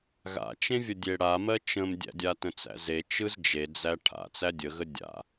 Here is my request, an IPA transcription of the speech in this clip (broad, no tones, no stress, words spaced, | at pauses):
ɣa̰t͡ʃẽvʲə dʲeɽamɜ t͡ʃə̃mdʲæ̰dʲa tə̃t͡sæ̰ze t͡ʃɯzd͡ʒed͡zæ ʈʰa̰ t͡sædʲəɣə dʲa̰